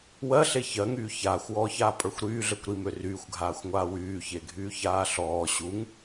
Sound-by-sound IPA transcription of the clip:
w ɜ ɬ e ç ɜ ŋ yː ç aː xʷ w ɔː ç aː pʼ ə˞ xʷ ɾ yː ɮ ə˞ kʷ ɾ i m ø r yː xʷ ɡʱ aː xʷ ŋʷ aː w yː ç e ɡʱ yː ç aː ɬ ɔː ɕ u ŋ

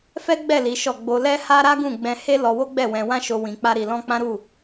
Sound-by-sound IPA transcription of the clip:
f ɛ˦ ɡ͡b ɛ˦˨ l i˨˦ ʃ ɔ˦˨ ɡ͡b o˧ l ɛ˦ h a˦ ɾ a˦ ɡ ũ˦˨ ɡ͡b ɛ̃˧ h e˦ l ɔ˧ w o˦ ɡ͡b ɛ˦˨ w ɛ̃˧ w ã˦ ʃ o˧ w ĩ˧ k͡p a˦ ɾ i˧ l ɔ̃˦ k͡p ã˦ ɾ u˦˨

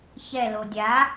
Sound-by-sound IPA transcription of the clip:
ç ɛ l o dʲ a

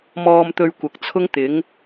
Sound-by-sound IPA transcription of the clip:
m ɔː˧ m t̪ ɵ˧ ɥ kʷ ɐ˨˥ k̚ t͡sʰ ʊ˥ ŋ t̪ ɪ˨˥ ŋ

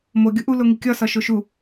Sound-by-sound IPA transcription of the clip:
m o ɡʲ u ʔ u l o ŋ i kʲ ɒ s ɒ ʃ o ʃ u

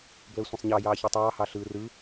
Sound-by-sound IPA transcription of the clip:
b l əː sʷ ẽ sˤ ɲ ɑ j ɑː ç i tˤ ɑː h ɑ ɬ ɯː r ɯ

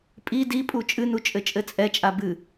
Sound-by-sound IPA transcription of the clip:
pʼ i d i pʼ u t͡ʃʼ ɨ n u t͡ʃʼ ɘ t͡ʃʼ ɘ t͡sʼ ɛ t͡ʃʼ a b ɨ

